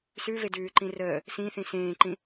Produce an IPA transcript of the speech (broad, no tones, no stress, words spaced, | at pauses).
sʉve dʉːǃĩ rəː | sĩ θĩsẽːǃĩ